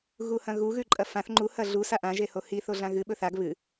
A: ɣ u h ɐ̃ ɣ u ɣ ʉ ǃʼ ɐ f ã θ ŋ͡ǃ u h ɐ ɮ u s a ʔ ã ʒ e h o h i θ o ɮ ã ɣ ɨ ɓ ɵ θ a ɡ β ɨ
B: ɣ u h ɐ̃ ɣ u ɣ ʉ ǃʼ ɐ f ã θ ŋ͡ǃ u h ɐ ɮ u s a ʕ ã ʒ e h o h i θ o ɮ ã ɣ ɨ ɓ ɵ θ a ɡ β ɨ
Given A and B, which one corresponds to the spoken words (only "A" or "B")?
A